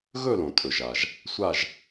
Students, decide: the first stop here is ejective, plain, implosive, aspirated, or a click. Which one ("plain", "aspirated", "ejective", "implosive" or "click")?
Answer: ejective